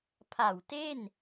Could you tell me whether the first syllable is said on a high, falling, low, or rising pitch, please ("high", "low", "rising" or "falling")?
low